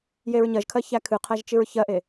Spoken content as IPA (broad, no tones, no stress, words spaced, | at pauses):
jeɹɲɜʒkʰɜ çækʰɨqʰæʒ t͡ʃɨɹçɜʔe